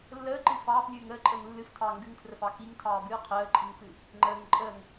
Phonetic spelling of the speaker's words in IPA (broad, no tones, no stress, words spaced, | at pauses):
lːəːǃɨ fɑːflʲɨːŋ əːǃʼəːŋ lːɨftʰɑː ŋɡɨŋtʰrəfɑ kiŋtʰɑːbɨː qʰəːǃʼiŋfɨ | ŋ͡ǃəːŋ ǃʼəːŋ